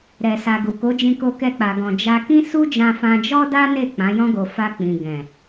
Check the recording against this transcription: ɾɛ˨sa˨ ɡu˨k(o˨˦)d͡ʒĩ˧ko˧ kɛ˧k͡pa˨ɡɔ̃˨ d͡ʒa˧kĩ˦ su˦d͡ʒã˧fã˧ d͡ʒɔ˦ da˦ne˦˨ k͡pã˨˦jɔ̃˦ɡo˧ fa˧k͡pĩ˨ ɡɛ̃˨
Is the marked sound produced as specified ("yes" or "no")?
yes